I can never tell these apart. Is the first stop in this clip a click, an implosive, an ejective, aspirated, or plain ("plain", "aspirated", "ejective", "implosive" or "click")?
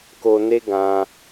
plain